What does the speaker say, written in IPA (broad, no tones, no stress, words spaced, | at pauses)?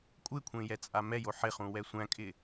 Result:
kʷʼɪkʷʰẽ jɛt͡sʼamɛjo ħɪχũ wɛsʷæ̃kʼɪ